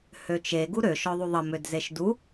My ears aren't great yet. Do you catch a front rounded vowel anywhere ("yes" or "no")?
yes